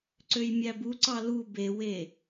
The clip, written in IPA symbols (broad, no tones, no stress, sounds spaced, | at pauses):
ǀ ø j mʲ æ b u ǀ ɑ l u b e w e